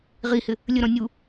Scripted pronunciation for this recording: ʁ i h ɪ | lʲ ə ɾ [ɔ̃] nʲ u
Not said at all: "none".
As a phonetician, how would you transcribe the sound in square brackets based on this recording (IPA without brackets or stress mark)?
ɔ̃